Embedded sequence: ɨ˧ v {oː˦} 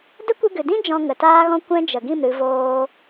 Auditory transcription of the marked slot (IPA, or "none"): oː˦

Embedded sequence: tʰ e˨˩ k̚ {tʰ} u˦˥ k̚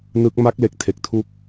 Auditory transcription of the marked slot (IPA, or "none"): tʰ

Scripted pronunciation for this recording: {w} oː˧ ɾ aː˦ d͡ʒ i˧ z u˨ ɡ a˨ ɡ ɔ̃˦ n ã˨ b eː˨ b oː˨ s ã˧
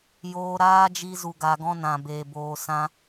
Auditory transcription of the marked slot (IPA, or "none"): j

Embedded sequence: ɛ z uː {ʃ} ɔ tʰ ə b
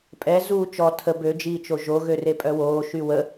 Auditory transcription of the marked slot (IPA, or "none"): t͡ʃ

